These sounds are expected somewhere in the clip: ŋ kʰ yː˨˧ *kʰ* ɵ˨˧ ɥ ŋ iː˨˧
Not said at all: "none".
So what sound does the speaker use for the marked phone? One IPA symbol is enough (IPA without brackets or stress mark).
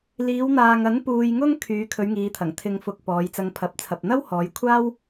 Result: kʰ